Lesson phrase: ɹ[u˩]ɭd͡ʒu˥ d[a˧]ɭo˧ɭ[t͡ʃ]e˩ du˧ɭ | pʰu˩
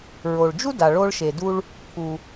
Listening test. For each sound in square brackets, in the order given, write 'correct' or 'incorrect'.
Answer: incorrect, incorrect, incorrect

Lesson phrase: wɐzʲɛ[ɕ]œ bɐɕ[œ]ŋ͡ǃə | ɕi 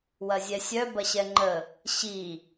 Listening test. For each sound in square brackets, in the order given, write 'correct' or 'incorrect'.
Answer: incorrect, incorrect

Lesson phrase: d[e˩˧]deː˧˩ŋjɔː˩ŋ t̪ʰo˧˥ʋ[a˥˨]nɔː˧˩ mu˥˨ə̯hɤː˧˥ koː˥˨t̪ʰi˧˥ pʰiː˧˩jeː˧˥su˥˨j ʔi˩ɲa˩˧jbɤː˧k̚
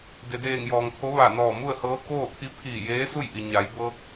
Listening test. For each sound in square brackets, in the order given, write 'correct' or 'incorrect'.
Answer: incorrect, incorrect

